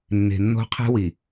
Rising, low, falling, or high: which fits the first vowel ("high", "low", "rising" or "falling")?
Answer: low